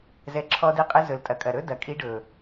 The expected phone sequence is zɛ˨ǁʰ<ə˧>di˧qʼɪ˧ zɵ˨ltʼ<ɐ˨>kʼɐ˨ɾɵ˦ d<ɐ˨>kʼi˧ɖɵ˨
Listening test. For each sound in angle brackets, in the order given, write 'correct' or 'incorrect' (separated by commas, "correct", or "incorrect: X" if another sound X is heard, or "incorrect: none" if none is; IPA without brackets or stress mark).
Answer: incorrect: ɔ˧, correct, correct